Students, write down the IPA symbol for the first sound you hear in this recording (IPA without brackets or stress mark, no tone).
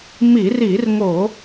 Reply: m